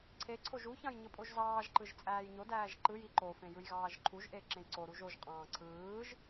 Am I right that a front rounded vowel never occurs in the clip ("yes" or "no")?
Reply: yes